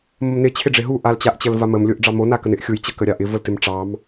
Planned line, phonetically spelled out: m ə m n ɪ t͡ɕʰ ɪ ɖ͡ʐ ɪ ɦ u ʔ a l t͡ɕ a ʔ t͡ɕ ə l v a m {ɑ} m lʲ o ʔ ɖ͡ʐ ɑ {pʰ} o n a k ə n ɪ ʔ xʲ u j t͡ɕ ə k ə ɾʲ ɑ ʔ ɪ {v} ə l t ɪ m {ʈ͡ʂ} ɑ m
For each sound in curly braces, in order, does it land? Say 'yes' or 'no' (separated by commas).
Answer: no, no, yes, yes